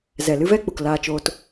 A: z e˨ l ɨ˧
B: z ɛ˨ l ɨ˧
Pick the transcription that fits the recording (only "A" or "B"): B